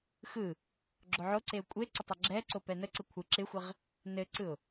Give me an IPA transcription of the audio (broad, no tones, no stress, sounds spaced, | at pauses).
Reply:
x ɯ | ɡ͡ǁ o ʕ o ǀ e ʊ̯ kʷʼ e ǀ ɪ tˤ ə ɡ͡ǁ ɛ ǀ o p ɛ n ə ǀ ɘ kʷʰ ɯ ǁ ɪ xʷ ɪ ʁ | n ɘ ǀ ɯ ʊ̯